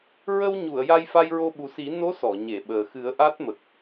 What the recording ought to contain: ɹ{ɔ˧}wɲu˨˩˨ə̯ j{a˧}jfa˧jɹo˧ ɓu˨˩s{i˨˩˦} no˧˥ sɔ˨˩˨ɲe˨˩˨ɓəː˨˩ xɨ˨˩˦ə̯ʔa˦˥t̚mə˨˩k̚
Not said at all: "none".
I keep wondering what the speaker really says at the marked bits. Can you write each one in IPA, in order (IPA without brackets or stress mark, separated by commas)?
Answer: ə˧, a˧, i˨˩˦